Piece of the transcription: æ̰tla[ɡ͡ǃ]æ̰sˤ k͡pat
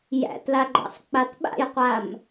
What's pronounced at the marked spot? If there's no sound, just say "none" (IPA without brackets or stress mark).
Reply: ɡ͡ǃ